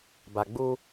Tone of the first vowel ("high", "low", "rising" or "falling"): low